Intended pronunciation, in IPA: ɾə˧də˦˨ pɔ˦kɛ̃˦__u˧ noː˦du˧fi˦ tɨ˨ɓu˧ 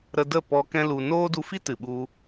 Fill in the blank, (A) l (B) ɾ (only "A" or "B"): A